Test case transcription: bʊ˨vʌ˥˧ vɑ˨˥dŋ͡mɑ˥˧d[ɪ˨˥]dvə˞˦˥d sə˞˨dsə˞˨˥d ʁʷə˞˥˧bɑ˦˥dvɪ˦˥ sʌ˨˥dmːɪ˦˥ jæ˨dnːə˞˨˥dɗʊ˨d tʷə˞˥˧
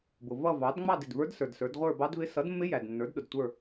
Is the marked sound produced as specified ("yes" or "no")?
no